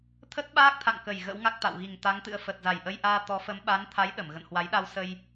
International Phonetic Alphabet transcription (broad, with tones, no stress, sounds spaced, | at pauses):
t̪ʰ ə˦˥ t̚ ɓ aː˦˥ k̚ t̪ʰ a̰˧˨ ŋ k ə˨˩ j ɣ ə̰˧˥ w ŋ a˦˥ k̚ t̪ a̰˧˨ w ɣ i˨˩ ŋ t̪ a˨˦ ŋ t̪ ɨ̰˧˥ ə̯ f ə˨˩ t̚ z a˨˩ j ʔ ə˧ j ʔ aː˧ t̪ ɔ˨˦ f ə˨˦ m ɓ a˨˦ n t̪ʰ a˨˦ j ɗ ə˧˩ m ɣ ə̰˧˨ n h w a˨˦ j ɗ a˧ w s ə˧ j